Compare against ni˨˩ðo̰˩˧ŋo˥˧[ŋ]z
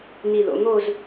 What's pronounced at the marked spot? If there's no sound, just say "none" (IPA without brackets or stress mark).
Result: none